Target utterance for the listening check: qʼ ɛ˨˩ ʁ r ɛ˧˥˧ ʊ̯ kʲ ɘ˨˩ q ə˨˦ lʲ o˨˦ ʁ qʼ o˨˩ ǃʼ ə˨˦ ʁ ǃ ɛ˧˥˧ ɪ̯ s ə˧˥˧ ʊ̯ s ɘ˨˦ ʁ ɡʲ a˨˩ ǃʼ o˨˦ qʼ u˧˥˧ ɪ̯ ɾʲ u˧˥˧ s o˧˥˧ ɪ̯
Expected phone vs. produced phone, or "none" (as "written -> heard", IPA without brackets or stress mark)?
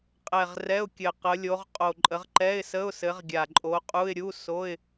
none